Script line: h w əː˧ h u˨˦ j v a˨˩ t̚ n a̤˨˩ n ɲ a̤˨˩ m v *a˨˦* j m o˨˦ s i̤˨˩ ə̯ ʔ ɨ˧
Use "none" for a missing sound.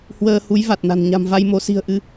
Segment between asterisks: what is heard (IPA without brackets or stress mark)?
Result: a˧